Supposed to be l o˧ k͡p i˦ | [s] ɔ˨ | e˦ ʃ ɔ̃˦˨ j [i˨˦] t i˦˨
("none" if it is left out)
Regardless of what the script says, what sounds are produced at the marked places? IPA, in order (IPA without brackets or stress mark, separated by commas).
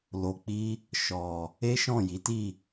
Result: ʃ, i˨˦